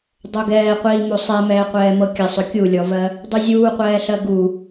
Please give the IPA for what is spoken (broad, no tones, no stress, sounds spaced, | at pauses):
dˤ o ɡ ɛː qʷ iː m o sˤ ɛ m ɛː qʷ ɛː m ɤ kʲ ə sˤ ɵ kʲ u lʲ ɔ v ɜ | dˤ y zʲ uː qʷ ɛː ɬ ɜ ɡ u